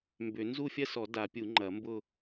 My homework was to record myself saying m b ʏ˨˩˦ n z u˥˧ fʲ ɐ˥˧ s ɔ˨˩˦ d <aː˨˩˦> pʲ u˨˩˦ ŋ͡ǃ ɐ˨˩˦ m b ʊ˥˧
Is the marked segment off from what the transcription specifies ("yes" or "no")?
yes